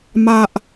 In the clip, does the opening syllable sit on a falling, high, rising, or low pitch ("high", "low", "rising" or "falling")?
low